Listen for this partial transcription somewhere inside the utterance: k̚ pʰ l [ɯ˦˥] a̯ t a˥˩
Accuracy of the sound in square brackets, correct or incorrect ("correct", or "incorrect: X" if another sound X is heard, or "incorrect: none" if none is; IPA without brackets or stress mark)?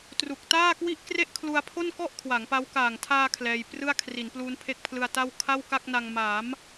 incorrect: ɯ˧